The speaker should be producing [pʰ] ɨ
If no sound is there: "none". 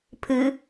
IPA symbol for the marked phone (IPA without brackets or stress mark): pʰ